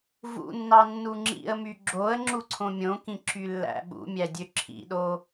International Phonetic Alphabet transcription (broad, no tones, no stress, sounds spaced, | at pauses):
v ṵ nː ɑ nː u ŋ͡ǁ ḭ ə̯ m y ɡ͡ǁ o ə̯ ŋ͡ǁ u ǀʰ õ mʲ õ k ĩ ǁ y lː æ̰ ɓ ṵ mʲ æ dʲ ø ǁʰ ḭ ɗ o